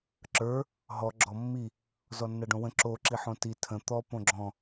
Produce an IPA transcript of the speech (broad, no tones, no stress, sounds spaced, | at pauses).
ǁ ə˞ | ɦ ɔ ɡ͡ǁ ɔ mː i | z ɔ nː a ɖ õ w ə̃ ǁ o ǁ i ħ õ t i tʰ ə̃ t̪ ɔ p õ ɡ͡ǁ ɔ̃